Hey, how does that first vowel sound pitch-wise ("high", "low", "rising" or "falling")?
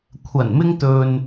low